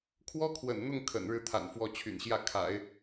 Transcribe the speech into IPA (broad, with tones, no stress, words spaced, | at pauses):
kʰwɔ˥kʰwə̰˨˩nn̪ʊ˥˩ŋ kʰə̰˨˩nɻɻ̩˥˩t̪ʰa̰˨˩n fwɔ˥˩ t͡ɕʰy̰˨˩nɕjä˥˩kʰa̰˨˩˦ɪ̯